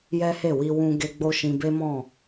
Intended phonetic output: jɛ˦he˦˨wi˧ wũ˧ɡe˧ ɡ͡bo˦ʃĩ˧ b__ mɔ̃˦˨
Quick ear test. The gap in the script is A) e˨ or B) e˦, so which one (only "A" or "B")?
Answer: B